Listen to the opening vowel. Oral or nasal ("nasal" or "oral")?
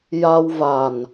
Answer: oral